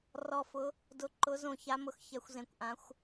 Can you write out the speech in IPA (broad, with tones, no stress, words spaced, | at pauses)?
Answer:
rɔ˧˩fʊ˨˦ | dʊ˨˦ǃʊ˨˦ zõ˧˩ça˨˦mʊ˧˩x çɛ˨˦xʷzẽ˧˩kʷʔã˨˦xʷ